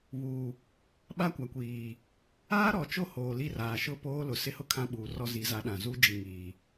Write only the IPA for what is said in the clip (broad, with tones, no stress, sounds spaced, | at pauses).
β uː˨ | ɓ a˦ kʷ a˨ kʷ iː˨ | aː˦ ɾ ɔ˨ t͡ʃ o˦˨ h oː˨ l i˦˨ r aː˨ ʃ ʊ˦˨ p oː˦ l ʊ˨ s ɪ˦ h ʊ˦ kʰ ã˦ ɓ uː˨ r ɔ˦ z i˨˦ z a˨˦ ɗ ã˨ z u˦ d͡ʒ i˨ ŋ iː˨